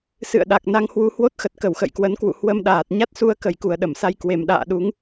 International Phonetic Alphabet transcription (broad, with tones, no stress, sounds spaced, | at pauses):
s ɨ̰˧˨ ə̯ ɗ a˨˩ k̚ n a˧ ŋ h w u˧ h w o˦˥ t̚ x ə˨˩ t̚ k ə˧˩ w x ə̰˧˨ j k w ə˨˦ n k w ṵ˧˨ h w ə˧ m ɗ aː˨˩ t̚ ɲ a˦˥ t̚ s u˧ ə̯ k ə˨˩ j k u˨˩ ə̯ ɗ ə˧˩ m s a˧ j k w e˨˩ m ɗ a̰ː˧˨ ɗ u˨˦ ŋ